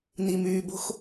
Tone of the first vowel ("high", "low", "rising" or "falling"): low